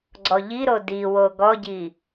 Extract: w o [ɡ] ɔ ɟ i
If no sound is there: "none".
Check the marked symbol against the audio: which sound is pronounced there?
ɡ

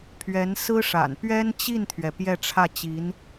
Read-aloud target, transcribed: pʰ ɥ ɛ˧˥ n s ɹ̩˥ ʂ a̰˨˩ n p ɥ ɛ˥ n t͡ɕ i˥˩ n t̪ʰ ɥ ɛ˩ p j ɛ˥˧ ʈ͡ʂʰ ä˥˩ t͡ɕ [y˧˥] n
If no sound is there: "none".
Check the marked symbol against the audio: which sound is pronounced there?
i˧˥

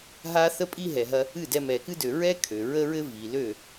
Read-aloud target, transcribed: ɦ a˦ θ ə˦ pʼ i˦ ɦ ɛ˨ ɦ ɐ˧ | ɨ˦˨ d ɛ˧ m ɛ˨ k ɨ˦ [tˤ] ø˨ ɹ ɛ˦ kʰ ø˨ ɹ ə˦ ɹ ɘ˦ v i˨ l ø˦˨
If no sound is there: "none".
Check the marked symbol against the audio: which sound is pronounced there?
d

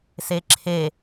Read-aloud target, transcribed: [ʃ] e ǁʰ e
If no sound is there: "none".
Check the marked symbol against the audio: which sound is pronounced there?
s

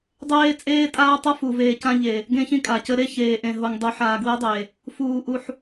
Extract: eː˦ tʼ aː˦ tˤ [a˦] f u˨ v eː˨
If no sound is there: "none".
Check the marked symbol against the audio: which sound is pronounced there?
ʌ˦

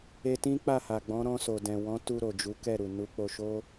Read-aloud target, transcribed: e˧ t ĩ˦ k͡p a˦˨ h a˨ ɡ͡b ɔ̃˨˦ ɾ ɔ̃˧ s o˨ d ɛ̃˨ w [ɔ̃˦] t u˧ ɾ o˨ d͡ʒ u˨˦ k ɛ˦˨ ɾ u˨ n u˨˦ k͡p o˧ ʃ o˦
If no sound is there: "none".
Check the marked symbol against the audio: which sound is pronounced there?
ɔ̃˨˦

